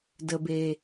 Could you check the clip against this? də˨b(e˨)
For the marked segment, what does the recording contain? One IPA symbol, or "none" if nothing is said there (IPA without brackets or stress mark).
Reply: e˨